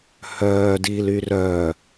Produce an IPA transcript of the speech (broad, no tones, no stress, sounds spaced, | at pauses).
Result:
h œː d iː l y r œ